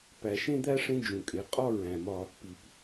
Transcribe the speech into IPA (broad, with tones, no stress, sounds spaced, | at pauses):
p æ˨ ʃ ẽ˦ d̪ æ˦ ʂ ẽ˦ d͡ʒ ũ˨ kʼ e˨˦ qʼ ɒ˦ ɹ æ̃˨ m ɒ˦ | p i˨ p